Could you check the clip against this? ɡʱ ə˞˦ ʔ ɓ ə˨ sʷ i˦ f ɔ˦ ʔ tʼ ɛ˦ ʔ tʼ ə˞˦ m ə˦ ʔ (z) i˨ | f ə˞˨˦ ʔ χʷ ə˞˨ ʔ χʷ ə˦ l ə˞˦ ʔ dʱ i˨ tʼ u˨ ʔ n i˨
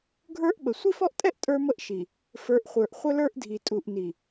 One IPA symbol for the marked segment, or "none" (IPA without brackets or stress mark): ʃ